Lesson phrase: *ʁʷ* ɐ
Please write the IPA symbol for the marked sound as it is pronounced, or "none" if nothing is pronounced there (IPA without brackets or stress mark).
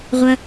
ʁʷ